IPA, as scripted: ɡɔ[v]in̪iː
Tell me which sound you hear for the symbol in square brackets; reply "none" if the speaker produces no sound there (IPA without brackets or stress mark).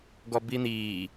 b